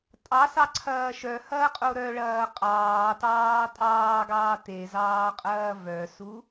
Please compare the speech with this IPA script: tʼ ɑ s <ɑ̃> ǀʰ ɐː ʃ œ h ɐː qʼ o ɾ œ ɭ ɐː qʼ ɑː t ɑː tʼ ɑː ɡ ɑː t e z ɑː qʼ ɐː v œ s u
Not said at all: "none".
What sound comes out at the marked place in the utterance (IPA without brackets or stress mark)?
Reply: ɑ